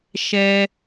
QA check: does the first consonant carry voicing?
no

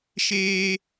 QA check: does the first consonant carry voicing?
no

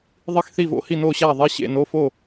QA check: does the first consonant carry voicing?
yes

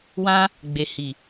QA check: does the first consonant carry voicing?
yes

